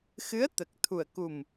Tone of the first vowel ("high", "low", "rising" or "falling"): rising